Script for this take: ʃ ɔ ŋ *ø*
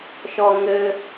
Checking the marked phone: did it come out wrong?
yes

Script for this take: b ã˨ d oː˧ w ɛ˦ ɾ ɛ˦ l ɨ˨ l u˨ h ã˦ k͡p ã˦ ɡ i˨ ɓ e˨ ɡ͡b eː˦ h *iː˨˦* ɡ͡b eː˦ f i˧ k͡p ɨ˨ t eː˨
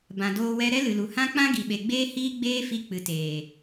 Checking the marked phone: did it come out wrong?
yes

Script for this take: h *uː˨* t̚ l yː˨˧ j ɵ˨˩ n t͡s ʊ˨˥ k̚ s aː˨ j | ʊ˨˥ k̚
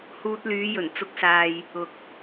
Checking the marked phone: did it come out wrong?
yes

